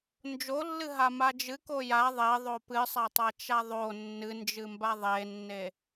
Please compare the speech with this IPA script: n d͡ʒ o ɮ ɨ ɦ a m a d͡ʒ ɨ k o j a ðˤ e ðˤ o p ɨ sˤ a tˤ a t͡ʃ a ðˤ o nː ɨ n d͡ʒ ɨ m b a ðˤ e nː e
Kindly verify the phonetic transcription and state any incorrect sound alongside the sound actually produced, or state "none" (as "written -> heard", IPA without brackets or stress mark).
ɮ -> lː